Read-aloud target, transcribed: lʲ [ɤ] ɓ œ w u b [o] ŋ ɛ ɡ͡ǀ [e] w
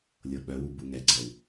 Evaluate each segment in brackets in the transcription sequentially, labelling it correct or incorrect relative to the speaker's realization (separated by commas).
correct, incorrect, incorrect